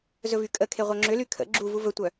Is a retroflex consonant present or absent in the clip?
absent